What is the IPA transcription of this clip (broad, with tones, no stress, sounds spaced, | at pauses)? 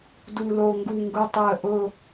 d u˨˩ l o˨˩ ŋ ɡ u˨˩ ŋ ɡ ʊ˨˩ tˤ ɪ˨˩ ə̯ ʔ ʊ˨˩